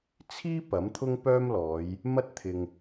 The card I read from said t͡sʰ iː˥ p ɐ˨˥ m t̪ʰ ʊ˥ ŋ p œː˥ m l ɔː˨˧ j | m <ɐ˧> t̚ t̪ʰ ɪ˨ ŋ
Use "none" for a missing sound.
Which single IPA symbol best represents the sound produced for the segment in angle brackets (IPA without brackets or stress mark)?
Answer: ɐ˥